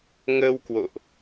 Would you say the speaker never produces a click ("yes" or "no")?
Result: yes